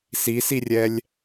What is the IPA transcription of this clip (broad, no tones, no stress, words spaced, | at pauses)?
sisirʲɛlʲ